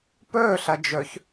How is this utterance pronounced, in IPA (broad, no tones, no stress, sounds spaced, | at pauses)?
p ɵː ɬ ɐ d͡ʒ ɵ ç